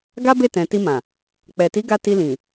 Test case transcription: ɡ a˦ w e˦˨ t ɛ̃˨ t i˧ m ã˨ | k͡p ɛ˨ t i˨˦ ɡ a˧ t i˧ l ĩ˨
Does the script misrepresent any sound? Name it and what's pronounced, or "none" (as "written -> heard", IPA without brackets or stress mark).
w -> b